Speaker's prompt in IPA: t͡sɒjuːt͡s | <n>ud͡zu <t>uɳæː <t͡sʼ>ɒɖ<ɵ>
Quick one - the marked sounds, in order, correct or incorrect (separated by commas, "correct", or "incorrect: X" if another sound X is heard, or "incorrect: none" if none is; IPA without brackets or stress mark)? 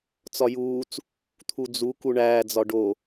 incorrect: t̪ʰ, incorrect: k, incorrect: d͡z, incorrect: o